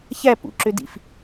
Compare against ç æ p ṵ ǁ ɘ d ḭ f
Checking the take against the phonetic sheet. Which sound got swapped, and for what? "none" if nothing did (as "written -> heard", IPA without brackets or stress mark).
ɘ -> ø